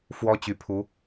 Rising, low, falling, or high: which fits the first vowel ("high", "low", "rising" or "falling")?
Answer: high